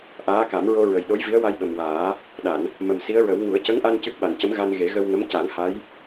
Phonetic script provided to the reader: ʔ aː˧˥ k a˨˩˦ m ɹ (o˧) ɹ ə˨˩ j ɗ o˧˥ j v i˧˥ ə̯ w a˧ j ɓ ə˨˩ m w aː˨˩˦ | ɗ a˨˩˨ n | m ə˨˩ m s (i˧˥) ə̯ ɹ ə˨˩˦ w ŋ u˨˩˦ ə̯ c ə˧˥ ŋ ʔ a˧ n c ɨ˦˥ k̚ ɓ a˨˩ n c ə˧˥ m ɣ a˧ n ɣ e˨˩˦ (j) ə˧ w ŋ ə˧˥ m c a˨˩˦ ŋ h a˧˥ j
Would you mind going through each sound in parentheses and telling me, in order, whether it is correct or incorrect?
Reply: correct, correct, incorrect

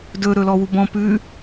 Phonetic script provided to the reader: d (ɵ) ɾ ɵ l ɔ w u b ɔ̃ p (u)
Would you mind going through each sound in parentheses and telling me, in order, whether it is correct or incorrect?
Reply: correct, incorrect

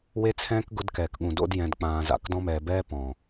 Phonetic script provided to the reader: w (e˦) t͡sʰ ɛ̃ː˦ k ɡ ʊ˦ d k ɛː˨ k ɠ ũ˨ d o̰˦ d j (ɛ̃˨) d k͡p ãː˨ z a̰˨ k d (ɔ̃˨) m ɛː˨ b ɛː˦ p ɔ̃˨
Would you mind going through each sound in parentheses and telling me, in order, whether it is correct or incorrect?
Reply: correct, correct, incorrect

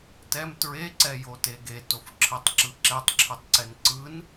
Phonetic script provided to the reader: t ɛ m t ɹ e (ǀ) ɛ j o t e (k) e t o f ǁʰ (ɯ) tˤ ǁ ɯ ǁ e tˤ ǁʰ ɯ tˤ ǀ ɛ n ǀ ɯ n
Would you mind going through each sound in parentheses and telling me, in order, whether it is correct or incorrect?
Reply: correct, incorrect, correct

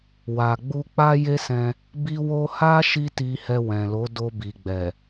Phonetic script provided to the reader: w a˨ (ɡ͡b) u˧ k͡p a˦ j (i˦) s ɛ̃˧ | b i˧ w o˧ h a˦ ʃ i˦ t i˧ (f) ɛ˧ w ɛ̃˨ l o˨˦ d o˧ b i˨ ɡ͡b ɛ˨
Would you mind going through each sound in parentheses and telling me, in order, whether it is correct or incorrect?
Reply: correct, incorrect, incorrect

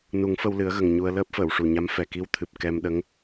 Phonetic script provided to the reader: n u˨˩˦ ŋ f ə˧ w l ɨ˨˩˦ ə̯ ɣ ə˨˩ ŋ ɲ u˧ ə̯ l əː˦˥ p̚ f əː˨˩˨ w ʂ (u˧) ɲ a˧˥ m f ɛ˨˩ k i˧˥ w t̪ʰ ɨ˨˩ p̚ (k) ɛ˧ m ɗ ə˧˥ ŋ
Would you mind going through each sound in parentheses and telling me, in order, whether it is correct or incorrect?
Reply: incorrect, correct

